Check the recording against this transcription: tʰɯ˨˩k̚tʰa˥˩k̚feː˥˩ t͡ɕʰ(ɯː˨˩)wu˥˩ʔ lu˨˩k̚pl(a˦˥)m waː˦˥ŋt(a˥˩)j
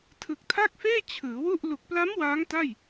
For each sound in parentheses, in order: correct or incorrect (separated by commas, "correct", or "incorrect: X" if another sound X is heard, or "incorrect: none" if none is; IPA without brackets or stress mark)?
incorrect: ɯː˩˦, correct, correct